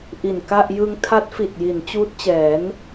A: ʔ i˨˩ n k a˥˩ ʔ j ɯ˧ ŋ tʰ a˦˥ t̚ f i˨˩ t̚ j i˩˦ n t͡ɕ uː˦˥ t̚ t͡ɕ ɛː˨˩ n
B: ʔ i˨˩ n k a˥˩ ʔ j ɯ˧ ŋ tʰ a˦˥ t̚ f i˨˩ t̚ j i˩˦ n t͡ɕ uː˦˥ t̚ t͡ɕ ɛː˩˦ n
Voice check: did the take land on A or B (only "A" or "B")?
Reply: B